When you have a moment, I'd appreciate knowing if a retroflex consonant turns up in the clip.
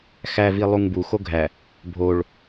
yes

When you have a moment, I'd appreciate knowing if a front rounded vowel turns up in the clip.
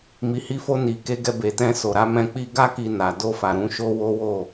no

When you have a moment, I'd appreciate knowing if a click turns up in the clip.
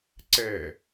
yes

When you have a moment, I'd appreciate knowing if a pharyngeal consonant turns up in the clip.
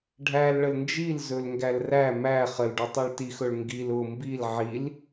yes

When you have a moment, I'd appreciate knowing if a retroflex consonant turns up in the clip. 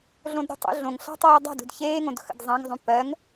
no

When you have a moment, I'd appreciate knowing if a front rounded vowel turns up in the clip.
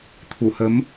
no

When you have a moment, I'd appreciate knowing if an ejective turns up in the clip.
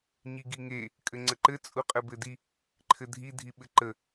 yes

